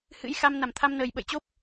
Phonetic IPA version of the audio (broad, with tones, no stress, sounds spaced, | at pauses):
h ɨ̰˧˥ j x a˧ m n a˧˩ m t̪ʰ a˧ m n əː˨˩ j ɓ ə̰˧˨ j t͡ɕ o˦˥ p̚